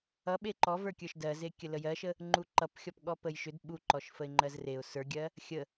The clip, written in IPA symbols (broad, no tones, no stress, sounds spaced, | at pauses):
ʌ ɓ e ǃ ɔ v ə˞ kʲ ə˞ ʃ d ɜ z e kʲ ə l ə j ɜ ʃ ə | ŋ͡ǃ u ǃ ʌ p xʲ ɔ p ɠ ɔ p ə j ʃ ʏ d ɓ u ǃ ɔ ʃ f ə ɪ̯ ŋ͡ǃ ɜ z r e ʊ̯ s ə˞ ɡʲ ɜ | xʲ ə